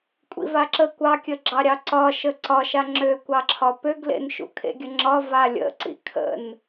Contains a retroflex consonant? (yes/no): no